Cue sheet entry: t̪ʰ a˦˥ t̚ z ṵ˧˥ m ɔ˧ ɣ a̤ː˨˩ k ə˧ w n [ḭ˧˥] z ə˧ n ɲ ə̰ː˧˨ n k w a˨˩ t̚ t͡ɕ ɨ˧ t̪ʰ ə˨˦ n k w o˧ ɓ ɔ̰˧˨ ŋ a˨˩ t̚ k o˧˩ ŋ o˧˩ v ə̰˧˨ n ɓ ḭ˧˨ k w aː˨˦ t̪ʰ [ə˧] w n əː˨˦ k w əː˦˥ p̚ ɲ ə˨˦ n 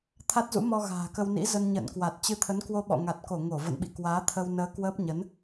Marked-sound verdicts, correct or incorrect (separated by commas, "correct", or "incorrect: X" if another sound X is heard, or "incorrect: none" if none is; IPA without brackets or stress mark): correct, correct